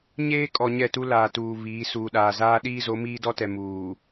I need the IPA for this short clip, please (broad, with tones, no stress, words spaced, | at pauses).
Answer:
ɲeː˦kʼɔ˨ ɲɛ˦˨tu˦ laː˨tuː˨ βiː˨˦ suː˨ɗaː˨zaː˦ ɗiː˦zo˨˦ miː˦dɔ˦tɛ˨ muː˨